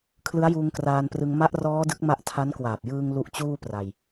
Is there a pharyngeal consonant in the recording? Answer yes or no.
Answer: no